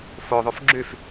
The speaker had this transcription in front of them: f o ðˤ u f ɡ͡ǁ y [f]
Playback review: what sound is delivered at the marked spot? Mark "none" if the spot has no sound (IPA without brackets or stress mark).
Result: f